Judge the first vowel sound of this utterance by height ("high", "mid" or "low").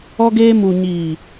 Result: mid